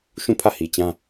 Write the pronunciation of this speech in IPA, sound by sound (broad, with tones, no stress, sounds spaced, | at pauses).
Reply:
ʃ ũ˦˨ pʰ ä˦˨ h i˨ t͡ɕ ã˦